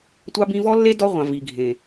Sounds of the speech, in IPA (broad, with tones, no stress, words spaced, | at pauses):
tʷɑ˦bĩ˦ vɔ˦lːe˦ dɔ˦ʁʷɑ̃˨ vi˨ɡʱẽ˨